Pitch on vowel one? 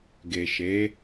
low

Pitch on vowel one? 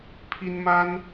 high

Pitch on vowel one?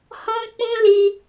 high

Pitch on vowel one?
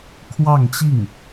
falling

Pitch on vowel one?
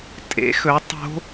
rising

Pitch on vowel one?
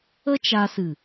high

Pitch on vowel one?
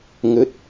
rising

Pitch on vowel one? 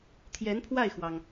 rising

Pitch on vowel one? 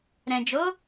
low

